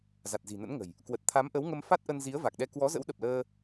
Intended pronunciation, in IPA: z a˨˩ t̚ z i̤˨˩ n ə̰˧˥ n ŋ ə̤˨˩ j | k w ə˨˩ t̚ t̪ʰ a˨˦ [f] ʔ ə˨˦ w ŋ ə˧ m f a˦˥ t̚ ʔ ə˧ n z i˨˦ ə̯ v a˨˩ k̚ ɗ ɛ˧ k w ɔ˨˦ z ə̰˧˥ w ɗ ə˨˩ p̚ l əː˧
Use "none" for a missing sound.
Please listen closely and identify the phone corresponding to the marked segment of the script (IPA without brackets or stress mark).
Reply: m